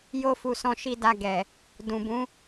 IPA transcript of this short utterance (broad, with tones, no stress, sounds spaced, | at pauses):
j o˧ f u˨ s ɔ̃˨˦ ʃ i˦˨ d a˧ ɡ ɛ˨ | d ũ˨ b ũ˨˦